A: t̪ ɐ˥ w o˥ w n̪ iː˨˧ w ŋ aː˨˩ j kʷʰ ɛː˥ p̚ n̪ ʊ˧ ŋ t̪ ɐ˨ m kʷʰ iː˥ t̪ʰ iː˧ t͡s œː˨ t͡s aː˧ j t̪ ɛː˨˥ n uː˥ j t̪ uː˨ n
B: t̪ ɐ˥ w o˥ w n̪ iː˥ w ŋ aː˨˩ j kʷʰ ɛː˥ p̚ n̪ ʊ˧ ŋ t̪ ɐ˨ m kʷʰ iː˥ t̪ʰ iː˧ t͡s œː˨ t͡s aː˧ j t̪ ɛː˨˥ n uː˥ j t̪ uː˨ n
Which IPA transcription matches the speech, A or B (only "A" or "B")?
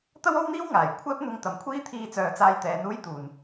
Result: B